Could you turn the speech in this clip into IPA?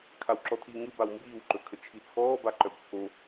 kʰ a w ǁ ɔ tʰ iː ŋ ɯ b a w m b iː w ǃ ɵ kʰ ə t͡ʃʰ i t͡sʰ ɔː b a ǃ œ b t͡sʰ o

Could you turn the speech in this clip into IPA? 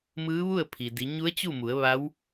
m ɯː˧˥ ʋ u˥˨ ə̯ pʰ i˩ d i˩˧ ɲ u˧˥ ə̯ t͡ɕ u˥˨ m u˩˧ ə̯ ʋ a˧˥ w

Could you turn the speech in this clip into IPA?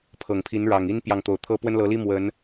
pʰ ɤ˨˩ ŋ pʰ i˨˦ n ɻ ɑ˨˩ ŋ i˦ n p j ɑ˨ ŋ t̪ o˨˩ ʊ̯ t̪ʰ ɤ˦ p w ə˦ n l ɤ˨˦ l i˦ m w ə˨˦ n

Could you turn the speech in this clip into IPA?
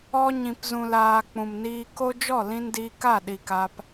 ɔ˦ ɲ ĩ˨ p z ũ˨ l aː˨ k͡p ũ˨ m n iː˧ k o˦ d͡ʒ ɔ˦˨ l ĩ˧ n d iː˧ k a˦˨ ɗ i˧ k a˦ p

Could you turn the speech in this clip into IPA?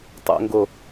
tˤ o̰ ŋ ɡ o

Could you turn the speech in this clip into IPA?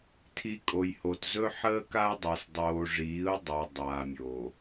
tʰ i˨ kʼ o˨ j h o˨ t z ɵ˦ ħ əː˦ k a˦ ʊ̯ dˤ a˨ s dˤ oː˨ ʐ iː˨˦ ʊ̯ dˤ a˨ dˤ aː˨ mʲ o˨

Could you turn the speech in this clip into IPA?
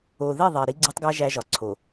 o˨ ð e˦˨ ðˤ e˨ ɾ i˦ ɡ͡ǀ e˦ tˤ ɡ æ˦ ʒ æ˦ ʒ ɒ˨ ǀʰ o˨

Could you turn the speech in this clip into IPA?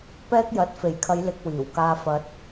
p ɛː˥ k̚ j ɐ˨˥ t̚ f e˨˩ j kʰ ɐ˨˧ j l ɪ˧ k̚ w iː˨˩ w k aː˧ f ɐ˧ t̚

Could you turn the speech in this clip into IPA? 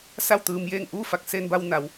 s a˥˨ w t̪ ɯː˧ m j eː˥˨ ŋ ʔ uː˥˨ f a˧ k̚ s e˧ n b a˧ w n a˩˧ w

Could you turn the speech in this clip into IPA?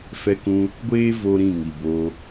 f ɛ˧ k ũ˧ | ɡʷ eː˦ v o˦ ɾ ĩ˦˨ ŋ i˨ b o˧

